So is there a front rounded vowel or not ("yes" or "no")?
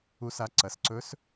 no